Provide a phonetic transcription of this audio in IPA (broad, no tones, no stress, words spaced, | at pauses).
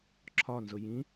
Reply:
ǁʰɒnzʊ jĩ